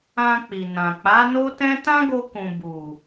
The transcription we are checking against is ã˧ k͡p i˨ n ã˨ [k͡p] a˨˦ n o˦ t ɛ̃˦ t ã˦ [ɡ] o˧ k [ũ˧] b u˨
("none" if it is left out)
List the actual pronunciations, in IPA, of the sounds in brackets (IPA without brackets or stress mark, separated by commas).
k͡p, ɡ, ũ˨